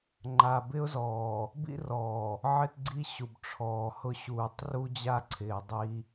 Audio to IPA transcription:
ŋ͡ǃ a˨ b ɪ˦ ʊ̯ z ɔː˨ | b ḭ˦ r ɔː˨ | ʕ ɪ˦ t ɡ͡ǀ i˦ ɕ u˨ b ʈ͡ʂʰ ɔː˨ h ʊ˦ ɕ uː˨ tˤ r u˦ d͡ʑ a˦ ǀʰ ɪː˨ dˤ i˦

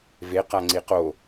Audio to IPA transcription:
v e q a ŋ͡ǀ i q o

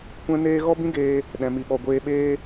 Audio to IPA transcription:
kʷ ɛ̃˦ n eː˦ ɣ ɔ˦ b ĩ˦ ɡ eː˧ | ɗ ɛ̃˨ m i˨ ɓ ɔ˨ ɡʷ eː˧ ɓ eː˦

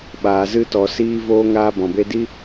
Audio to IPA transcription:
ɓ aː˨ z ɨ˧ t ɔ˨ s iː˧ v oː˧ ŋ aː˧ b ɔ̃˨ b e˦ d i˦

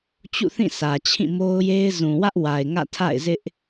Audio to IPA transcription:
t͡ɕ ṵ˦˨ θ ĩ˦˨ s ä˨ t͡ɕʰ ĩ˦˨ m o˦ ʊ̯ j e˦ ɪ̯ z ũ˨ w ä˦ ʔ w a˨ ɪ̯ ŋ ä̰˦˨ tʰ a̰˦˨ ɪ̯ z ɪ˦ ʔ

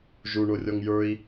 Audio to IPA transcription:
ʒ u ɳ o rʲ ɔ ŋ j ə˞ i̯

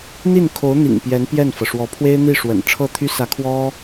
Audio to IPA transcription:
n̪ i˥˩ n kʰ o˧˥ ʊ̯ n̪ ḭ˨˩ ŋ p j ɛ˧˥ n p j ɛ˥˩ n f ɤ˩ ʂ w ɔ˧˥ pʰ w e˥ ɪ̯ n̪ i˥˩ ʂ w ə̰˨˩ n ʈ͡ʂʰ ɤ˥˩ t̪ʰ y˥ s ä˧˥ kʰ w ɔ˥

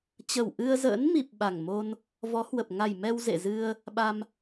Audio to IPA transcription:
t͡ɕ ə˨˩ w ʔ ɨ˧ ə̯ z ə̰ː˧˥ n m i˨˩ p̚ ɓ a˨˩ ŋ m o˧ n | v ɔ˨˦ h w ə˨˩ p̚ ŋ a˨˩ j m ɛ˧ w z ḛ˧˨ z ɨ˧ ə̯ | ɓ a˧ m

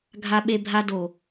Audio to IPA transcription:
ɡʱ a˦ ɓ e˦ bʱ a˦ d o˨

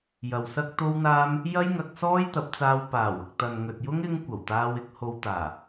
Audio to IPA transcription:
j ɐ˨ w s ɐ˥ k̚ t̪ o˥ w n̪ aː˥ m | j ɐ˥ j ŋ ɐ˧ k̚ s ɔː˥ j t̪ ɐ˨˥ p̚ t͡s aː˧ w p aː˨˩ w ʊ˨ k̚ t̪ ɐ˨ n ŋ ɵ˨ t̚ j ʊ˥ ŋ ɪ˥ ŋ kʷ ɐ˨˩ w t̪ aː˧ w ɪ˨˥ k̚ h o˧ w t̪ aː˨˩

